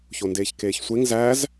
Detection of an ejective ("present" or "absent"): absent